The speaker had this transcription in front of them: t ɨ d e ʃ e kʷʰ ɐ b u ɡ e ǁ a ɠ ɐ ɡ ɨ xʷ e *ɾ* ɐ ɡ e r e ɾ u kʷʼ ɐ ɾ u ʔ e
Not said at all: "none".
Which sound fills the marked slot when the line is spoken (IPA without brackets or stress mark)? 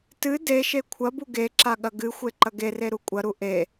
ǃ